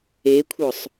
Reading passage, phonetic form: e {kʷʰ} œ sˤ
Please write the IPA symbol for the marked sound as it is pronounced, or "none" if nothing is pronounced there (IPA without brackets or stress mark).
kʷʰ